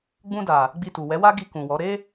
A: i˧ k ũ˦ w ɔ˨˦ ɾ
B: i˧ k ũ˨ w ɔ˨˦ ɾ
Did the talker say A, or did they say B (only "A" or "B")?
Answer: B